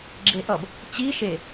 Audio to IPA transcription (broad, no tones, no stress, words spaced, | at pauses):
ɡ͡ǁeʔʌb | t͡ɕi ʃe